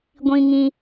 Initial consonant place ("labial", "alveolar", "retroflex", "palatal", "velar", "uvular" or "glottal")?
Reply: velar